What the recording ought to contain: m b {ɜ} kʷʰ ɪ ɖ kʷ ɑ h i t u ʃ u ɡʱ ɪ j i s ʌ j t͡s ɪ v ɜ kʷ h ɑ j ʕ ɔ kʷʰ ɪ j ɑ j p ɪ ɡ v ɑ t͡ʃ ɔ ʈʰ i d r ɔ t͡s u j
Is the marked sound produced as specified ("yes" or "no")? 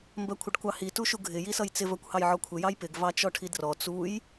yes